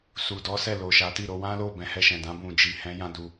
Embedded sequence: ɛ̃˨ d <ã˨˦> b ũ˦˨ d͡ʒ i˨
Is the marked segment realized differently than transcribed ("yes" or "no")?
no